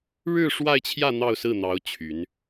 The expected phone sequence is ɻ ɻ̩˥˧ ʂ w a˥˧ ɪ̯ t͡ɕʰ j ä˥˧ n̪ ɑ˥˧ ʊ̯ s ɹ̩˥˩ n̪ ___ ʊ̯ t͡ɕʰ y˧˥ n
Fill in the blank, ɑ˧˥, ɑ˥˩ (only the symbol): ɑ˧˥